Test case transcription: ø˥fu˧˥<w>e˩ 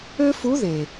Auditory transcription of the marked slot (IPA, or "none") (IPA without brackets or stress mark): ð